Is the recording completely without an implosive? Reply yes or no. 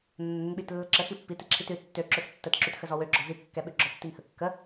no